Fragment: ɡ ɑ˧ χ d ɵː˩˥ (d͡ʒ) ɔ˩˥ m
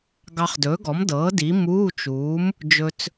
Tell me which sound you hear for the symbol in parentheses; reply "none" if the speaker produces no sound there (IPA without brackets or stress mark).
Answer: ɡ